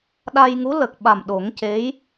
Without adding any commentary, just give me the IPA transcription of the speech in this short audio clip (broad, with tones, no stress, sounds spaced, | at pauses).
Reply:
ɗ a˧ j ŋ u˧˥ l ə˨˩ k̚ ɓ a˨˩ m ɗ o˨˩˦ ŋ c e˧˥ j